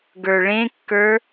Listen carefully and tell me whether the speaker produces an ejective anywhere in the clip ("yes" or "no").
no